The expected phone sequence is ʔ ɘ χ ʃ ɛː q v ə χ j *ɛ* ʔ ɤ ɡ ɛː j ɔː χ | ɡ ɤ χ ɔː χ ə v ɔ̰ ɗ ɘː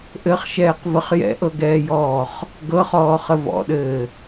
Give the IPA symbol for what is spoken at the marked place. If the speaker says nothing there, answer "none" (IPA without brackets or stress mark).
ɛ̰